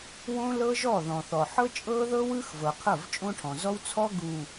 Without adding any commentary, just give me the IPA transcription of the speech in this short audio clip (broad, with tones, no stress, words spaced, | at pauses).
wõ˦lɤ˦ʒɔ˦˨ ðɔ̃˨θɔ˨ ħɤ˦ t͡ʃʼɤ˦ðɤ˦ wɯ˦x vɤ˨qʰɤ˦˨vt͡ʃʼõ˦ʈʰɔ̃˨ zɔ˦wt͡sʰɔ˦ ɡu˨